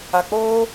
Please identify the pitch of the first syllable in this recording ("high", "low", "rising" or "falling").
low